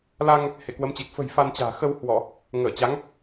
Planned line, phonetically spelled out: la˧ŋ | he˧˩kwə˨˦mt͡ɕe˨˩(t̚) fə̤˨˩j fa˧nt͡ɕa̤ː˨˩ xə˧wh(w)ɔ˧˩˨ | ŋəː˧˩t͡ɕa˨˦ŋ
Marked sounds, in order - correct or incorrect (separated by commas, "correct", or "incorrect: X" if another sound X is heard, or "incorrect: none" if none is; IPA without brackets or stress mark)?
incorrect: k̚, correct